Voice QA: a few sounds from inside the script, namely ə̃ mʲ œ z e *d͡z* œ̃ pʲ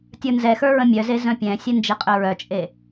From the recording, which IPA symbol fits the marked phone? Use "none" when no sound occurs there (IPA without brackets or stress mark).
z